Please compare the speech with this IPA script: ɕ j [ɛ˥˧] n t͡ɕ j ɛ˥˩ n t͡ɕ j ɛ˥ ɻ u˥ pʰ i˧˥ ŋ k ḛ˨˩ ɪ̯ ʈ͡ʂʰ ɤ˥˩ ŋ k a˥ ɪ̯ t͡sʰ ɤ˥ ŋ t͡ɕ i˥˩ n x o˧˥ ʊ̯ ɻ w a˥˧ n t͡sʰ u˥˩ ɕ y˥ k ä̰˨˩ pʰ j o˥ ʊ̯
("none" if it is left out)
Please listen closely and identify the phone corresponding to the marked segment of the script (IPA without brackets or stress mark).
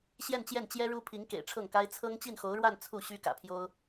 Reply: ɛ˥˧